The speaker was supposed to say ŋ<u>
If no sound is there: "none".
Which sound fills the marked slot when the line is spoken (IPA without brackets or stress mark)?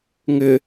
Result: ʏ